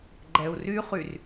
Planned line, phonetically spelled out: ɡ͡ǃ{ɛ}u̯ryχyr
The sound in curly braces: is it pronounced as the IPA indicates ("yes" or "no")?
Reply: yes